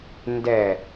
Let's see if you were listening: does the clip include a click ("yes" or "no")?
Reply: no